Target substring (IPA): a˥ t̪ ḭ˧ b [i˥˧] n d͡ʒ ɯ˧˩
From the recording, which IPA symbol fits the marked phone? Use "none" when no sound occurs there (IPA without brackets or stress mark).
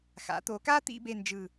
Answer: e˥˧